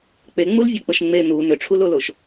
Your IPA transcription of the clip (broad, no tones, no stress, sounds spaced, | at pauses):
k͡p e ŋ͡m u l vʲ e k͡p ə ʃ ŋ͡m e n u n ʏ ʈ͡ʂʰ u l o l o ʃ